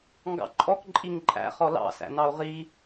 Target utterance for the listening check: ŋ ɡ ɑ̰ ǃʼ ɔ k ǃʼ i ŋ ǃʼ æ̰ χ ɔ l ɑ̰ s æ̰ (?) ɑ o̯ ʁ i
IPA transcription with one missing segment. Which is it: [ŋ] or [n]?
n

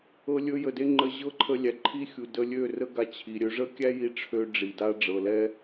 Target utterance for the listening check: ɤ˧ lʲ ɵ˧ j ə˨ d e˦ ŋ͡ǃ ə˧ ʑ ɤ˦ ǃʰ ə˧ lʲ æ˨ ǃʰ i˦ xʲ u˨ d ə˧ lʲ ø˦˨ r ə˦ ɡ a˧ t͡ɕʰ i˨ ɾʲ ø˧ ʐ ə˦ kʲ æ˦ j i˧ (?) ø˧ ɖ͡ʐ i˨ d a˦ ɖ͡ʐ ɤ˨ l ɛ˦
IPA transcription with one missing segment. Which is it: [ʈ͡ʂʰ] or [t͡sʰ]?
ʈ͡ʂʰ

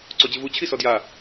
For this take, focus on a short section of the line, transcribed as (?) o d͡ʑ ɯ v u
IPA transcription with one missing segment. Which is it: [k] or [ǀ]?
ǀ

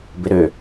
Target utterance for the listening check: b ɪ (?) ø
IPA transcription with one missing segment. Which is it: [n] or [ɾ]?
ɾ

